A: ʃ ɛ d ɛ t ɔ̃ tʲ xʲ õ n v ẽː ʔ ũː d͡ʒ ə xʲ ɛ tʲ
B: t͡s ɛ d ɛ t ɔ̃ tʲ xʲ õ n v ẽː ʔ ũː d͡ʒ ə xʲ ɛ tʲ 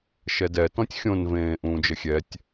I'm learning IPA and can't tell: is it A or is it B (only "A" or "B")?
A